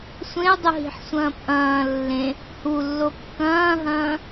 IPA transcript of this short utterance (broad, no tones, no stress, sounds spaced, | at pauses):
sʷ ẽ ə̯ dˤ u ɦ i̤ ħ sʷ ɐ̃ː p ʔ ɐ̃ː lː ẽ | h u lː o kː ɐ̃ː ɦ ɐ̃ː